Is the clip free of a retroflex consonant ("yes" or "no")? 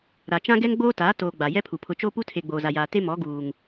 yes